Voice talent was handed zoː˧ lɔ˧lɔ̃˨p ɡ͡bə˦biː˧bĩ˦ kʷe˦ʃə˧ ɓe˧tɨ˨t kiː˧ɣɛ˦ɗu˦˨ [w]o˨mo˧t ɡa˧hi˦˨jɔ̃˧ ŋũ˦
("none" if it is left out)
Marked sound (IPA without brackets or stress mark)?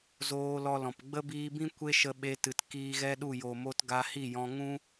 j